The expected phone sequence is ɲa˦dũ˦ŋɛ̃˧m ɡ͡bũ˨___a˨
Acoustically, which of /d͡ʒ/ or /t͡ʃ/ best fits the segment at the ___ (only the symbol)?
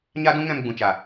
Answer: t͡ʃ